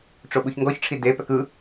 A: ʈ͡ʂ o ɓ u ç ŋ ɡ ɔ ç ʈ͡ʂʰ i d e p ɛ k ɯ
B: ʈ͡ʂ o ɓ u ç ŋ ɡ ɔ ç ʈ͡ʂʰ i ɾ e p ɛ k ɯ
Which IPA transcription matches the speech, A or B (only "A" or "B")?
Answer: A